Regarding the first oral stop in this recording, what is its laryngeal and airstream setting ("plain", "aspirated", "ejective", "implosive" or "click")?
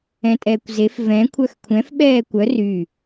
ejective